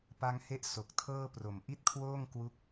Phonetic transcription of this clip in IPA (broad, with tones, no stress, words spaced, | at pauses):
pa˧ŋhe˦˥ʔ so˨˩k̚ tʰɤː˥˩pro˨˩m ʔi˥˩t̚kʰwoː˥˩ŋkwu˦˥k̚